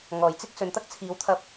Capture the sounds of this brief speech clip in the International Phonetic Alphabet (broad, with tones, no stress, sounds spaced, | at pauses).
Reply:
ŋ ɔː˨˩ j t͡s ɪ˥ k̚ s ɵ˨ n t̪ ɐ˥ k̚ t͡sʰ iː˨˧ w t̪ʰ ɐ˧ p̚